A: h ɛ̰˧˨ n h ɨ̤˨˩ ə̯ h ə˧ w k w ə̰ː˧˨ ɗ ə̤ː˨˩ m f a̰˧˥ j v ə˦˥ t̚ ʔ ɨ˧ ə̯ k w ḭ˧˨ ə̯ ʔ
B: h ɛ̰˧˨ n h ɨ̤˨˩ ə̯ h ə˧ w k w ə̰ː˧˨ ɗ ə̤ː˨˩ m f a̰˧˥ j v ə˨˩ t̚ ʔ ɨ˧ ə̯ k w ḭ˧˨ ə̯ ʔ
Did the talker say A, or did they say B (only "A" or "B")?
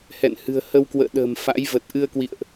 B